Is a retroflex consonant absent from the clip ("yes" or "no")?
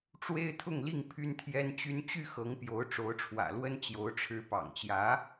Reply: no